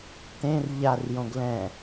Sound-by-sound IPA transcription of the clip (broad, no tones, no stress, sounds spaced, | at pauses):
t ẽ r ʎ a r j õ ɡ l ɛ̃